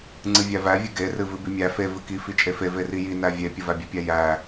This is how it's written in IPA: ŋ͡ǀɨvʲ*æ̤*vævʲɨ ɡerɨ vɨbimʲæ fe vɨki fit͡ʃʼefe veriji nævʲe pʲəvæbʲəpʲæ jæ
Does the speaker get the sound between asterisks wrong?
yes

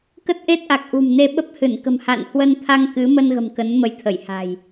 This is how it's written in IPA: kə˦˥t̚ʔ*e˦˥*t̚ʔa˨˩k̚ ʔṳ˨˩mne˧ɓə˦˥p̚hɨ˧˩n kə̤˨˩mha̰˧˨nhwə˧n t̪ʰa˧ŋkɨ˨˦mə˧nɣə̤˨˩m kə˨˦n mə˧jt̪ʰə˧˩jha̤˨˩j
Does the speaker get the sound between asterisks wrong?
no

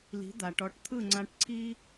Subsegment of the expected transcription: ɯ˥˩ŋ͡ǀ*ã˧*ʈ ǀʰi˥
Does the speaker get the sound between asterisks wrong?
no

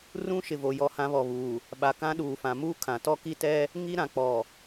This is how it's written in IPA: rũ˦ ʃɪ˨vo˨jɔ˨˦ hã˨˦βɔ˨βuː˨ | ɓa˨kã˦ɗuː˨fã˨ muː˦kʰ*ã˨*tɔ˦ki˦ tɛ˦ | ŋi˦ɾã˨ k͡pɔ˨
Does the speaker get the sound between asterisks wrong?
no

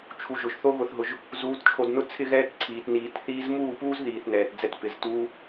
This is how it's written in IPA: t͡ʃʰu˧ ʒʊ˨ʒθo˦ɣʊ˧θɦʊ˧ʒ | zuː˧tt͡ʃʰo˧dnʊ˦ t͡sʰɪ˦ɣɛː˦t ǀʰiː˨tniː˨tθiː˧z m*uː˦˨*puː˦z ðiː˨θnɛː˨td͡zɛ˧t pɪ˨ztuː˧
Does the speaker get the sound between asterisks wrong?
no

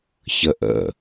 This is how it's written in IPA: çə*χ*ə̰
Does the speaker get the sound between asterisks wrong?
yes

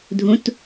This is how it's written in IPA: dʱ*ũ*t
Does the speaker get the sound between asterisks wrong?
no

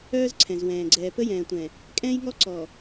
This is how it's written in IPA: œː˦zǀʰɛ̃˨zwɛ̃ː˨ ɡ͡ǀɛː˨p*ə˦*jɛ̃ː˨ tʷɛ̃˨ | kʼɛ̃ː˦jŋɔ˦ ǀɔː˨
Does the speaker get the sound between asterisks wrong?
no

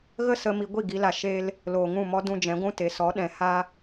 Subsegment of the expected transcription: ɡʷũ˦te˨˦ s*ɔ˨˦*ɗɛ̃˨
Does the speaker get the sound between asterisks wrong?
no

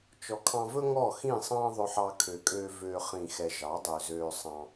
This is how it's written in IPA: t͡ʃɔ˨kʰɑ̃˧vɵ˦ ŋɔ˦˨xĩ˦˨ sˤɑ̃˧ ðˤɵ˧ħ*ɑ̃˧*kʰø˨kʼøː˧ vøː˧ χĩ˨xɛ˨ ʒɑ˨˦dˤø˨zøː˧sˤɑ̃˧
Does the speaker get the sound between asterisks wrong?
yes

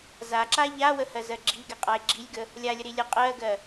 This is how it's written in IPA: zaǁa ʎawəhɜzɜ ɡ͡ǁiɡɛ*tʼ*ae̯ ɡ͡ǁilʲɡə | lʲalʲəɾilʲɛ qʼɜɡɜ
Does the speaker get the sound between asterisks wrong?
yes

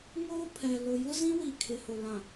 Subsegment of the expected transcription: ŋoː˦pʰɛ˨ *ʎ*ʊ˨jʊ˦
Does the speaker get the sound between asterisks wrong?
yes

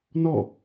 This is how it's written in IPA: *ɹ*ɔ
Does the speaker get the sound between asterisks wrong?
yes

